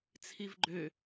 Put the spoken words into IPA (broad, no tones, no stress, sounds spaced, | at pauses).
t͡sʰ i v ɡ͡ǃ ø